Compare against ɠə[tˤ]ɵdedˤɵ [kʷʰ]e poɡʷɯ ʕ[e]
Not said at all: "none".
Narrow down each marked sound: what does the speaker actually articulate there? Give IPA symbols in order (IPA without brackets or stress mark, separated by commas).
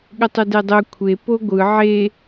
tˤ, kʷʰ, e